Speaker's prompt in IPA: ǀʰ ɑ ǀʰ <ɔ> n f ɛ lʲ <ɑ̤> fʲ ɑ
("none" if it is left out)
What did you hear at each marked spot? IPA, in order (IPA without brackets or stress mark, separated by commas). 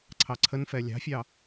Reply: ə, ɑ̤